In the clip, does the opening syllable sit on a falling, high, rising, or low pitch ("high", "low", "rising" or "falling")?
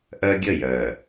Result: high